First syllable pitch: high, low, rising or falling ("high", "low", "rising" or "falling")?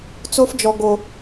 high